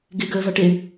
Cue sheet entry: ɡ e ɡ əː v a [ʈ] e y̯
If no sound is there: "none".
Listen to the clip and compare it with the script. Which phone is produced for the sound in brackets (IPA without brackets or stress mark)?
ʈ